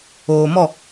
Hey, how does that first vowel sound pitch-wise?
low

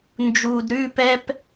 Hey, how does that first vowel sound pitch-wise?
low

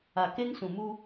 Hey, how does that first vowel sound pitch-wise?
low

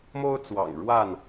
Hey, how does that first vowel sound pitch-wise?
high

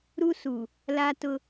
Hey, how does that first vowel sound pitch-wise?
high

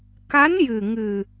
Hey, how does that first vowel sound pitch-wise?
rising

